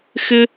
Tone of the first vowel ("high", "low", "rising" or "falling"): high